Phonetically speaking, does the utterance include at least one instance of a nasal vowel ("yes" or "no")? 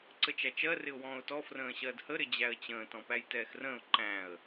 yes